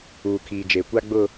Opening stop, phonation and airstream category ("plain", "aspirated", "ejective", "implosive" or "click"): aspirated